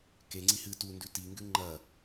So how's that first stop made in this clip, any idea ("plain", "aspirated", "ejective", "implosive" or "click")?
plain